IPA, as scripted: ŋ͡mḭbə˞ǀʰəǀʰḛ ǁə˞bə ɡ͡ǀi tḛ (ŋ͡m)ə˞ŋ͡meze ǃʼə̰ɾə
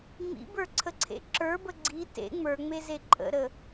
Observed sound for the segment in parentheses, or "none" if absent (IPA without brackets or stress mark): ŋ͡m